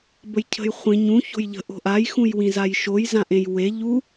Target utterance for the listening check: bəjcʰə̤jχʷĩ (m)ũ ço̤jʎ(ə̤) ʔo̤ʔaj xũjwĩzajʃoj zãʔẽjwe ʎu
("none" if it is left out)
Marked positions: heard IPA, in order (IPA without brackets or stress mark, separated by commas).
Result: ɲ, ə̤